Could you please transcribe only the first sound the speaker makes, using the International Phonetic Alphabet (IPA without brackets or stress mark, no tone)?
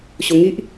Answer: ɕ